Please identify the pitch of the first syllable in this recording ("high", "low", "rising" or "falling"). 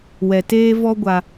low